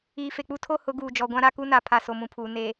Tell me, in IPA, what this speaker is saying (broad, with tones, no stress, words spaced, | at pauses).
iː˨ fe˨k͡pu˦ tʰo˦hʊ˨˦ɡuː˨d͡ʒɔ˨ ɡʷã˦ɾa˦ ku˦na˨˦ pʰa˨so˨mũ˨pʰuː˨ neː˨